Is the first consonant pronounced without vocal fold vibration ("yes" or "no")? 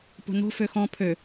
yes